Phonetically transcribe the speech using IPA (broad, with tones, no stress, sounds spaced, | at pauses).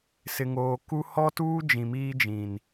s ɪ˨ ŋ oː˨ k u˦ h ɔ˦ t uː˦ d͡ʒ ĩ˨ m iː˦ d͡ʒ ĩ˨ n